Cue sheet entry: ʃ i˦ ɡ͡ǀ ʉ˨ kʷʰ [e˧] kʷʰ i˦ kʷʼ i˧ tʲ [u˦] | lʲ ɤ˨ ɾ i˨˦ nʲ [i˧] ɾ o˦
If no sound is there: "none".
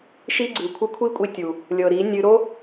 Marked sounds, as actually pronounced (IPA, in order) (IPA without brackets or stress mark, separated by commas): ɨ˧, u˨, ɨ˧